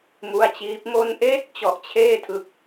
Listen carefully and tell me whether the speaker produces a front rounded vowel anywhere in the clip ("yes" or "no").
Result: no